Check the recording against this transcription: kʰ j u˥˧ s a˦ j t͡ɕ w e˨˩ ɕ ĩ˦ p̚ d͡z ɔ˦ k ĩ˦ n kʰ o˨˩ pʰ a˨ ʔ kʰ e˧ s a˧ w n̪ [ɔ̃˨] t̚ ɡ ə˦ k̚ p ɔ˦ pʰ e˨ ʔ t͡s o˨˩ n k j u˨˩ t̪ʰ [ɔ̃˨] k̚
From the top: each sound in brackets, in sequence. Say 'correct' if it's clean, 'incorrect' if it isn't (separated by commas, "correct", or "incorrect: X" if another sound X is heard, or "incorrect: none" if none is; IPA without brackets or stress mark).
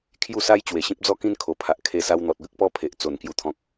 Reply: incorrect: ɔ˨, correct